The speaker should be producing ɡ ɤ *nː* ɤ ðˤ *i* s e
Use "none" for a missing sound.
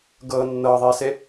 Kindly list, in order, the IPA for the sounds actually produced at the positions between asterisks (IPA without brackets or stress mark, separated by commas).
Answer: nː, e